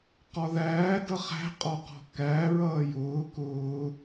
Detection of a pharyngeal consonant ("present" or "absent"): absent